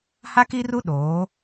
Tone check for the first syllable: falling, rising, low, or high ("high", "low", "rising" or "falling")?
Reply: high